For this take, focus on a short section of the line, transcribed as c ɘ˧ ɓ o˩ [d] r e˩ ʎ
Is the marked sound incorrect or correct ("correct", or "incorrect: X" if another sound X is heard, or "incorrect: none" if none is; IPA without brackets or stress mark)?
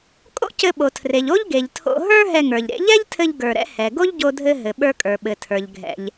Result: incorrect: tʰ